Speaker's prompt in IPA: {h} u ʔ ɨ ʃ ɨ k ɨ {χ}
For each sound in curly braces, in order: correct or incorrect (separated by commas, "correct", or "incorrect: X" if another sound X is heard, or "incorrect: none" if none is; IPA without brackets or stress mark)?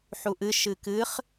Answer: incorrect: ħ, correct